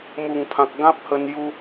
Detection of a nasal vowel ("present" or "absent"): present